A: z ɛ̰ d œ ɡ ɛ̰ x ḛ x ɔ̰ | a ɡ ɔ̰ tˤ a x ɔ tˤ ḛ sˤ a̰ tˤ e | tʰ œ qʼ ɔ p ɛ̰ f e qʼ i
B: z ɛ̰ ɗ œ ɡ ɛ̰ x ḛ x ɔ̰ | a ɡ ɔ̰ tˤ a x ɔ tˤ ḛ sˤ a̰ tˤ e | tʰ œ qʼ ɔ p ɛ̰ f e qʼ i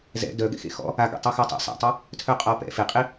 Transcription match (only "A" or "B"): A